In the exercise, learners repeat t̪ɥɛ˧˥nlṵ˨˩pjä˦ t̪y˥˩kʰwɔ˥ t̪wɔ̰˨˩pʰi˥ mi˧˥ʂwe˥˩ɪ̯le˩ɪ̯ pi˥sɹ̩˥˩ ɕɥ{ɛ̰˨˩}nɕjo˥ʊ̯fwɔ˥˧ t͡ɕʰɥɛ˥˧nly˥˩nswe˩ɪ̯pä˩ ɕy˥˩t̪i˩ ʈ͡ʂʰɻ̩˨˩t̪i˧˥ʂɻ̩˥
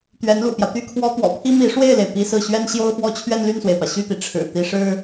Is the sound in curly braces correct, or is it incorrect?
incorrect